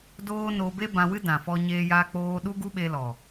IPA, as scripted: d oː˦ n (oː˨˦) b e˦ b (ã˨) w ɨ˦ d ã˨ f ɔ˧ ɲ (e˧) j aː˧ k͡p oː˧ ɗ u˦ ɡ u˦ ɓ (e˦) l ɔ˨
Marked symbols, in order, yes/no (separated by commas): no, no, no, no